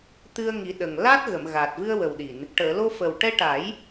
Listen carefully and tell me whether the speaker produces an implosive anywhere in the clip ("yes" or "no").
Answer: yes